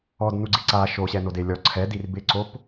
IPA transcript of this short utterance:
ɔdnuɡ͡ǀi ǀa ʃoɕɛnode lʲɔ ǀʰɛdir bɪǀop

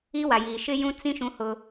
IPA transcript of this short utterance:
i˦wa˨jiː˨ ʃɪ˦jũ˦t͡sĩ˦ ʃũ˦hʊ˦

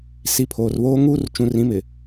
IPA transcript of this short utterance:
si˨˦pʰoː˨rβoː˦ ŋuː˦rt͡ʃũ˨rĩ˨˦mɪ˨

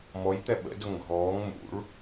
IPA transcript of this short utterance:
mɔj t̪ɛɓə̰ dʊŋɡʱɔːŋ mṵɭ

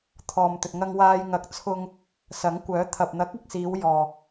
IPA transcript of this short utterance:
t̪ʰɔː˨mt̪ɵ˨t̚ ŋɐ˧ŋwaː˧j ŋɐ˨˥k̚t͡sʰʊ˧ŋ | sɐ˨˥ŋkʷœː˨˥t̪ʰɐ˨p̚ n̪ɐ˨˥k̚ɪ˨k̚siː˨˧w jɔː˧

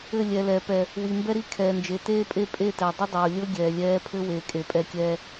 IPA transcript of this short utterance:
ɘ˦˨ lʲɛ˨lɛː˨ pɛ˨ | wi˨ mbɛ˦ɾi˦˨ kʰɛː˨nd͡ʒe˨ teː˦pʼe˦ pʼe˦˨tɛ˨ dˤə˦dˤoː˨lʲɤ˦ ɡʲɛː˨lʲɛː˦ pʰɘ˦ weː˨kʼe˨pʼɛ˦˨kʲɛː˦

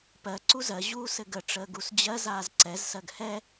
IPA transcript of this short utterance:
pɜ ǀuzɜ ʑuːsɘɡə ʈ͡ʂəːɡusd͡ʑɜ zaːzǀɛz sɜɡhɛ

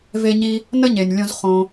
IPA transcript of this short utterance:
ve˧ɲi˧ | nə˦ɲe˨nʲlʲõ˧z χõ˧

